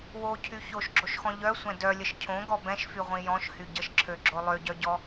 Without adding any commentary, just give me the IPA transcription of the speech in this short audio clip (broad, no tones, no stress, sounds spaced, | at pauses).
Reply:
w o cʰ y ç o ʃ ɡ͡ǁ o ʃ x ɔ̃ ʎ œ sʷ ɛ̃ d œ lʲ ə ʃ cʰ õ ɡ ɔ b ɛ̃ ʃ f y ʁʷ ĩ j ɔ̃ ʃ h y ɟ ə ʃ ǁʰ ø ɡ͡ǁ o lˠ ø ɟ œ ɟ ɔ